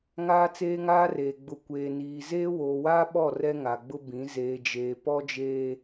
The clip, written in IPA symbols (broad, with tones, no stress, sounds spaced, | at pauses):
ŋ aː˦ t͡s eː˦ ŋ aː˦ r eː˨ ɡ͡b ʊ˨ kʷ eː˨ n iː˨ z eː˦ w oː˨ w aː˦ ɓ ɔ˦˨ r ɛ˦ ŋ a˨ ɡ͡b ʊ˦ b ĩ˨˦ z eː˨ d͡ʒ eː˨ p ɔ˦ d͡ʒ eː˦